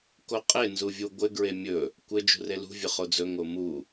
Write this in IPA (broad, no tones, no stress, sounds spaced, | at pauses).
k o qʼ e n z u vʲ u ɡʷ ɘ ɡ ɹ e mʲ ɵ | kʷ ɘ d͡ʒ ṳ r e l ṳ vʲ ɵ χ o d͡z ɵ ŋ o m u